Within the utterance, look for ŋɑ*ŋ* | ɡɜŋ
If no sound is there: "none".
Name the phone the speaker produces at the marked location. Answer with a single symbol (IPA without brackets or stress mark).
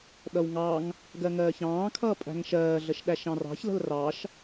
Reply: ŋ